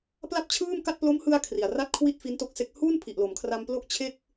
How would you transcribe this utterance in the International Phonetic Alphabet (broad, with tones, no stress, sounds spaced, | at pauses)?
p l a˥˩ p̚ t͡ɕʰ ɯː˥˩ m k a˥˩ t̚ p l o˦˥ m h ɯ˧ a̯ kʰ r i˨˩ a̯ r a˥˩ t̚ kʰ w i˥˩ t̚ f i˦˥ n t o˦˥ k̚ s e˦˥ k̚ h u˥˩ n pʰ i˨˩ ʔ l o˩˦ m kʰ r a˧ m p l o˥˩ k̚ t͡ɕʰ e˥˩ k̚